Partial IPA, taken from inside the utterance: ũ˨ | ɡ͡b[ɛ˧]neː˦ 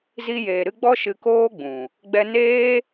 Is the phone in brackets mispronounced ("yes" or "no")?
no